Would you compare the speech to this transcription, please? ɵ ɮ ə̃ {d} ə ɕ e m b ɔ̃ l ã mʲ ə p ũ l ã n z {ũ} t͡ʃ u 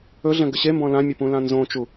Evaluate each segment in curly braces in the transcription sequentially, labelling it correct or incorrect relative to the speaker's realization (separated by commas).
incorrect, incorrect